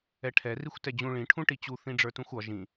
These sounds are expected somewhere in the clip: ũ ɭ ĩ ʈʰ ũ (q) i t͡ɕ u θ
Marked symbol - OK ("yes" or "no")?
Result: no